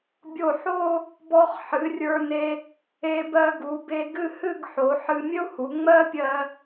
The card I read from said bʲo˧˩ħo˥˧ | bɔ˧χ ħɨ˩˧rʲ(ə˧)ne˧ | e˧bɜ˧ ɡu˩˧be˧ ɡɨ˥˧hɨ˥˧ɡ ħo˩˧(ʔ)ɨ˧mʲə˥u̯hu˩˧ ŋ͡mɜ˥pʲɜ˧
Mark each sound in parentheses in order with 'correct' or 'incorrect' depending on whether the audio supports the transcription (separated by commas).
incorrect, incorrect